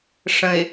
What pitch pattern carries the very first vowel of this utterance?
low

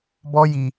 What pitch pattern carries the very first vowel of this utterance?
high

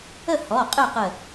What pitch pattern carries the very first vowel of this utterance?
falling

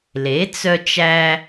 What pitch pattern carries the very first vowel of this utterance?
rising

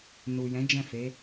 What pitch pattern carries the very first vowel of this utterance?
low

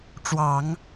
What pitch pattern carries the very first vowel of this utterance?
low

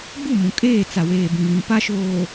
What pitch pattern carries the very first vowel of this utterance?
falling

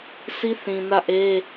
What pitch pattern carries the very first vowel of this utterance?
high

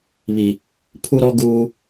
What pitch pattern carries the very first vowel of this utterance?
low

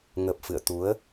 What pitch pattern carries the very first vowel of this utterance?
low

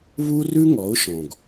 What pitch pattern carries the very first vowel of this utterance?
high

